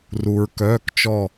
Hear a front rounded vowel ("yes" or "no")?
yes